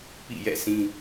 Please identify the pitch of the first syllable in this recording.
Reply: falling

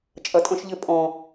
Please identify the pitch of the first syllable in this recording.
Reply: low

